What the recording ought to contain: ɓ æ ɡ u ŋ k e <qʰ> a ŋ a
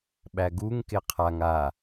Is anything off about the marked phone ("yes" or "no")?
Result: no